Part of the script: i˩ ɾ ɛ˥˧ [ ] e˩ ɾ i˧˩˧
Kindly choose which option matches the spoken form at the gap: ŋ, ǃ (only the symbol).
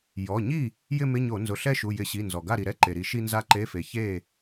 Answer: ǃ